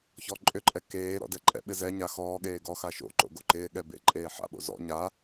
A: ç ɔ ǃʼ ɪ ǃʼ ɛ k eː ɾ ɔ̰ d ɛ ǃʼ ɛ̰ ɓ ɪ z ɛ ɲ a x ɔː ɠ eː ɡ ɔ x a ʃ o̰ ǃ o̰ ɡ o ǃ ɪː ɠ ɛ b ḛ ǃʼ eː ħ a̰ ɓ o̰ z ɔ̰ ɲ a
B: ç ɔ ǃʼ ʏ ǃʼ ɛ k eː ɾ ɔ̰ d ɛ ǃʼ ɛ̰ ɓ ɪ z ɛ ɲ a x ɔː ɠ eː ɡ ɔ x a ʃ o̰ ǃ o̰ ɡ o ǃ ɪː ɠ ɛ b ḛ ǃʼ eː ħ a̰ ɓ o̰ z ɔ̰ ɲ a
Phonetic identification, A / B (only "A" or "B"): B